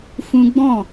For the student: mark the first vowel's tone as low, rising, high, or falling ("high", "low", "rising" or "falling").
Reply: high